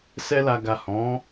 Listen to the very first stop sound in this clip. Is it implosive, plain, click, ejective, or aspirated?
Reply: plain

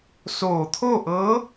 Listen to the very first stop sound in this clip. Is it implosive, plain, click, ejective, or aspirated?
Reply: aspirated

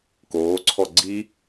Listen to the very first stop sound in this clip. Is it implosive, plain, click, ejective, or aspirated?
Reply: plain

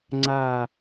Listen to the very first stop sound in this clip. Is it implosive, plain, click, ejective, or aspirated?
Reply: click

